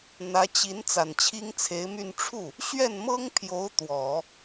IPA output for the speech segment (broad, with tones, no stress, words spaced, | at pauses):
n̪ä˧˥t͡ɕi˧˥n t͡sa˨˩nt͡ɕʰi˥ŋt͡sʰe˧˥ɪ̯my˥˧n ʈ͡ʂʰu˥˩ | ɕɥɛ˥˩nmɤ˥ŋpʰjo˧˥ʊ̯ t̪wɔ˨˩˦